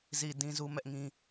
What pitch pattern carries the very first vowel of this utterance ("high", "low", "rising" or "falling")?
low